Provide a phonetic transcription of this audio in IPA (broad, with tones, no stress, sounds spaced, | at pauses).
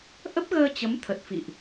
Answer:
ʔ ə˦˥ p̚ ɣ əː˧ t͡ɕ ə˨˦ m t̪ʰ ə˨˩ t̚ f ḭ˧˨ ʔ